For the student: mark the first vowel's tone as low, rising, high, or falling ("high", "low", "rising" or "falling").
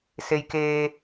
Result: low